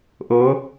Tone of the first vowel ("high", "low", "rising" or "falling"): rising